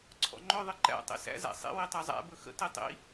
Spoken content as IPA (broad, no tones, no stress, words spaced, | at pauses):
ǀʰɔ̰ŋ͡ǃɵ ðˤɘǃæ̰ tˤḭsæ̰ zæ̰sˤḭ witˤazˤæ̰ bɵxə̰ titˤḭ